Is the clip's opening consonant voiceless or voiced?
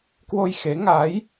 voiceless